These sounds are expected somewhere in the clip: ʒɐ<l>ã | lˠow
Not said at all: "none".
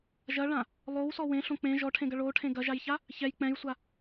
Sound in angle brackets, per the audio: ɭ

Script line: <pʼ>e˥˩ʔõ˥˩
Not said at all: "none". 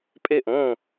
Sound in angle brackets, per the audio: pʼ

